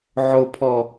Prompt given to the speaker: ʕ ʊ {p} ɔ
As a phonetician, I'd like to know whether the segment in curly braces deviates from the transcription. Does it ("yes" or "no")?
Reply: yes